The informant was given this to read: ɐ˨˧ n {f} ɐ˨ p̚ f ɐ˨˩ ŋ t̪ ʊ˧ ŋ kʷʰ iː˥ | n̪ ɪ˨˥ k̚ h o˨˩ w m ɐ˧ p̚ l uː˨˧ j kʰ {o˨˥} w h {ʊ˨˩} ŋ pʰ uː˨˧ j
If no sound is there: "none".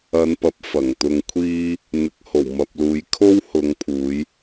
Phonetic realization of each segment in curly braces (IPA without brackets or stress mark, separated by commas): p, o˥, ʊ˨˧